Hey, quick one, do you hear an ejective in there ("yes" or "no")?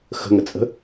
yes